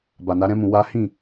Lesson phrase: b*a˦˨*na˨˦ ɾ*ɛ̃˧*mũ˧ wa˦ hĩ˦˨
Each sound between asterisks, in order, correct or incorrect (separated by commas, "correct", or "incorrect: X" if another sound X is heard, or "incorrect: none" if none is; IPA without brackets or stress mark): incorrect: a˨, incorrect: ɛ̃˦